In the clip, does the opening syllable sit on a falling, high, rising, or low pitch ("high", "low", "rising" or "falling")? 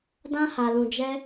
high